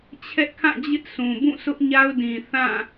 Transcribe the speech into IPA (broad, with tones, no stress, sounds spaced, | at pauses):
t͡ɕʰ ɛ˦ ʔ kʰ ã˦˨ d͡ʑ ɪ˦ ʔ s ũ˨ b ũ˦˨ s ʊ˦ ʔ ɲ a˦ ʊ̯ d ĩ˨ θ ã˦˨